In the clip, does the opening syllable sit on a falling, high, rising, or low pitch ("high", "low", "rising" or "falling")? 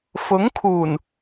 rising